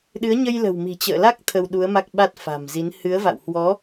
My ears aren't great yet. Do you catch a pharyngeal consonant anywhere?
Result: no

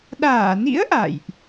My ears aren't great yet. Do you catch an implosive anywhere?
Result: yes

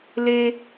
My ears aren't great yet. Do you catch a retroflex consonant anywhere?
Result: no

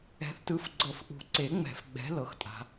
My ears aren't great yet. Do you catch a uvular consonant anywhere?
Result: no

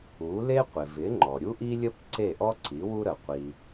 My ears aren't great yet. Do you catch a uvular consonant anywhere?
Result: yes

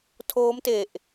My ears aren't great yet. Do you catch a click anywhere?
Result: no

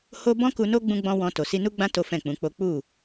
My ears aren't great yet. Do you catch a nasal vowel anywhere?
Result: yes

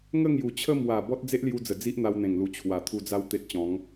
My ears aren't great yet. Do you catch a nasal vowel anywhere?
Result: yes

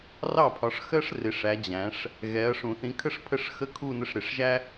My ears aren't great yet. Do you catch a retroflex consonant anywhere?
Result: yes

